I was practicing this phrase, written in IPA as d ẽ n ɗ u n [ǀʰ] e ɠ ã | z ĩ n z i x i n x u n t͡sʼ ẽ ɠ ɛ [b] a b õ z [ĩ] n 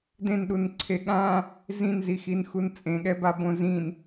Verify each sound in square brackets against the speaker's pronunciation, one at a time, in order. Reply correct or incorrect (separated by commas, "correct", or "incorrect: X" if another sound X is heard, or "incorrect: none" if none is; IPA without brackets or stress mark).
correct, correct, correct